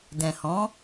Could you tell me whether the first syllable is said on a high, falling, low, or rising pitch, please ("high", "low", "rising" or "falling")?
low